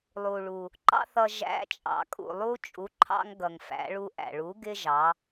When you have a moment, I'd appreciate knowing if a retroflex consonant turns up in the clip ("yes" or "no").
yes